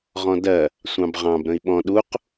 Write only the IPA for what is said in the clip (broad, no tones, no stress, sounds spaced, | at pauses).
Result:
ʁ ɔ̃ d ɜ | sʷ ɑ̃ b ʁ ɑ̃ b ɾ ə̃ i̯ ɓ ɔ̃ ɗ u q